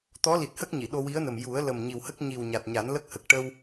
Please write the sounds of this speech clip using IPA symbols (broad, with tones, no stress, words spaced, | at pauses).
t̪ɔ˧˥li˨˩t̚hə˦˥k̚ ɲi˨˩˨ɗo˧ wi˧˥ə̯nə˨˩m ju˨˩˦ə̯lə˨˩m ɲi˨˩whə˦˥k̚ ɲi˨˩w ɲa˨˩t̚ɲa˨˩˦nlə˦˥k̚hə˨˩k̚ ʈə˧w